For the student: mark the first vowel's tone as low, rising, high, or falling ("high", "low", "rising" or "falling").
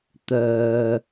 low